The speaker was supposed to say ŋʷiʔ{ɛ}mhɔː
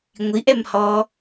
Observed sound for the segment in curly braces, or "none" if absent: ɛ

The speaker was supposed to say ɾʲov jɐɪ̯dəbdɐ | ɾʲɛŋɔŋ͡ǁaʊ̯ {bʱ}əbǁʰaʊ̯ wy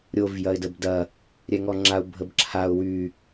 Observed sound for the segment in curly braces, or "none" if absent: bʱ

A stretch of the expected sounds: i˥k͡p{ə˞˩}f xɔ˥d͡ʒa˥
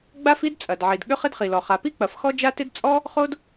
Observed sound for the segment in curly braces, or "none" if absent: ɐ˩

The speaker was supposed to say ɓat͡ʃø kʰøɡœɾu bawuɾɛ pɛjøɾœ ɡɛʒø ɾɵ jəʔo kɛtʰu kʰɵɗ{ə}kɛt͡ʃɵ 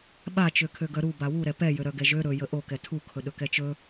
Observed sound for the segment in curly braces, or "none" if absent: ɵ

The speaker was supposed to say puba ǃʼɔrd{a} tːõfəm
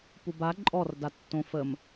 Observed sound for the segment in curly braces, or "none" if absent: a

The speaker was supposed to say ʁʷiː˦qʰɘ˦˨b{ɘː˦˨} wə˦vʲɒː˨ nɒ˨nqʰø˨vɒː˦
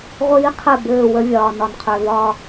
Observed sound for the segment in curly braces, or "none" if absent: ɘː˦˨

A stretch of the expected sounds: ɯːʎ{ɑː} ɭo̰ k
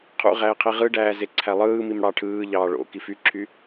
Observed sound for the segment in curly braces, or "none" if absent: ɑː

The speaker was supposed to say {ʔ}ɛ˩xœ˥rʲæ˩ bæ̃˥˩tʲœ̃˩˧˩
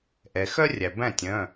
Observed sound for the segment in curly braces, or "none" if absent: ʔ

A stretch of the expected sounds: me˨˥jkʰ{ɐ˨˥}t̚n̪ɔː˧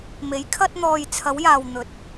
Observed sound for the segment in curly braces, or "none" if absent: ɐ˥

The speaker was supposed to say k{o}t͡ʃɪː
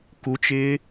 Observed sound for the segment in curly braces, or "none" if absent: u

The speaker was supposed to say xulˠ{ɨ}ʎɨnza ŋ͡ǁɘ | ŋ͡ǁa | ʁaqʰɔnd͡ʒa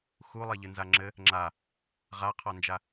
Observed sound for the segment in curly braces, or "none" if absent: e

